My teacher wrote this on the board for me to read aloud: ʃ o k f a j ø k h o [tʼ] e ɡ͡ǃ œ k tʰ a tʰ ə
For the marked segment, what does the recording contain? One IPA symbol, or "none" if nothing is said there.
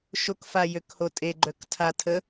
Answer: tʼ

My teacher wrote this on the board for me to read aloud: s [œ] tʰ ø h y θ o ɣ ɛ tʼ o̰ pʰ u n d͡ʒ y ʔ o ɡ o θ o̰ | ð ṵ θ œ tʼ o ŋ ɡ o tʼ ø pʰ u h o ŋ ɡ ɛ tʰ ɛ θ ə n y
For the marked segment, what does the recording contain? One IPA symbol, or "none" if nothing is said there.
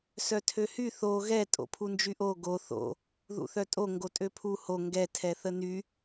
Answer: œ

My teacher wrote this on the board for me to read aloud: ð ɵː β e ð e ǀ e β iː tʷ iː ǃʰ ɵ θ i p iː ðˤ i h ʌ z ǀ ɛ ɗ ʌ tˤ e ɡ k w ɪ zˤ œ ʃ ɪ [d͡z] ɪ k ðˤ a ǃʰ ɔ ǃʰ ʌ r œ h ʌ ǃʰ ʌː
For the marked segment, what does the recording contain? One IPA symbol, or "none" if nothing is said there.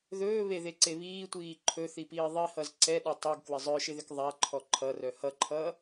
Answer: ð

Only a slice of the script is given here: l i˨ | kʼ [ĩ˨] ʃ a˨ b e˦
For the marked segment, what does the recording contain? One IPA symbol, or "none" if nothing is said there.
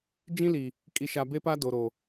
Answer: i˨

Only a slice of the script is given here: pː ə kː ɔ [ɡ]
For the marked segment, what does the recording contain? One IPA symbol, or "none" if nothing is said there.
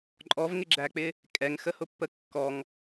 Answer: ŋ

